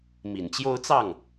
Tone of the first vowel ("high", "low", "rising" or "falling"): low